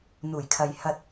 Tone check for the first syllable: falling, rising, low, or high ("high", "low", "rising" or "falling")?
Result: low